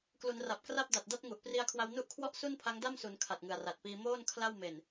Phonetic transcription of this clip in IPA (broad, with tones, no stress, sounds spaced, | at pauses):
k l u˩˦ n r a˨˩ p̚ k r a˥˩ p̚ d a˨˩ t̚ d a˥˩ t̚ ŋ u˨˩ ʔ p r i˧ a̯ kʰ w a˧ w n u˦˥ ʔ kʰ w ɔ˦˥ ʔ s u˥˩ n pʰ a˦˥ ŋ d a˥˩ m s u˩˦ n kʰ a˨˩ t̚ ŋ ɯ˨˩ a̯ r a˨˩ t̚ p iː˧ m oː˥˩ n kʰ l a˥˩ w m e˨˩ n